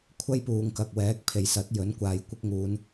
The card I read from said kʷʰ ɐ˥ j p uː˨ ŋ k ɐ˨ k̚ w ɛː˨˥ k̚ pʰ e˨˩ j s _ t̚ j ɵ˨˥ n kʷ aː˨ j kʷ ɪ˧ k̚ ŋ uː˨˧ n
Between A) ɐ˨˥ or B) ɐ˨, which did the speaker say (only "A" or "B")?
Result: A